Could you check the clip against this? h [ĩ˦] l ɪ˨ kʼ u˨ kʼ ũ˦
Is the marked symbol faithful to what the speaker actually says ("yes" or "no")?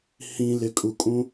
no